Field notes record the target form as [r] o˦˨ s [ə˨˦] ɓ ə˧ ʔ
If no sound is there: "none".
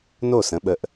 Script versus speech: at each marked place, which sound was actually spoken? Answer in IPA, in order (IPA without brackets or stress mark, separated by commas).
n, ə̃˨˦